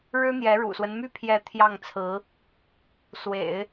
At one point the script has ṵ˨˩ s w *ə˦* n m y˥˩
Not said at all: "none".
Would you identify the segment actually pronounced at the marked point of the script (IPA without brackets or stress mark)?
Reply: ə˦